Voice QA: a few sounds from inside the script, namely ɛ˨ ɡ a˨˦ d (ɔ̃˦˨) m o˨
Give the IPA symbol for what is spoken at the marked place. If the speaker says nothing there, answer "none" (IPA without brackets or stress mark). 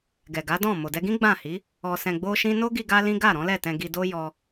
ɔ̃˦˨